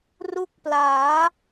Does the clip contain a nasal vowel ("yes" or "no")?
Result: no